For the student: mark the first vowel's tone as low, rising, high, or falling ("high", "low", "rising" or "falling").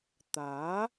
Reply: rising